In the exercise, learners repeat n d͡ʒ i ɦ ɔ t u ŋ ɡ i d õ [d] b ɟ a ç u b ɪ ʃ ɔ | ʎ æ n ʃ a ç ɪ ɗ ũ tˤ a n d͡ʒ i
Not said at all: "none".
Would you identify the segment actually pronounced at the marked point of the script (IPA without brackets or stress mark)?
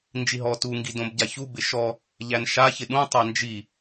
none